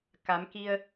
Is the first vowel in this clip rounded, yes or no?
no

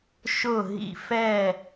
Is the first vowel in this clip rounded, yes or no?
yes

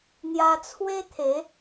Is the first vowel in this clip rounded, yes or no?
no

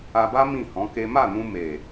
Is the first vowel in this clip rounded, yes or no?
no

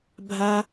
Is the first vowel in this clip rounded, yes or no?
no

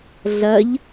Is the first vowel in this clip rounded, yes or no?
no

